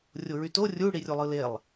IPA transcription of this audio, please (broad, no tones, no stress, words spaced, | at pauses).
rʲoɹyto rʲu ɽirʲulˠɯlelˠ